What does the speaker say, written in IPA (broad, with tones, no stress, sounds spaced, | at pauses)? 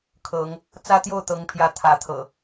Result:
kʰ ɤ˨˦ ŋ | t͡s ä˦ t̪ j o˥˨ ʊ̯ t̪ ɤ˨˦ ŋ pʰ j ä˨˦ t̪ʰ ä˨˦ t̪ʰ ɤ̰˨˩